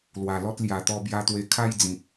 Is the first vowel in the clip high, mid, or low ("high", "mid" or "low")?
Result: low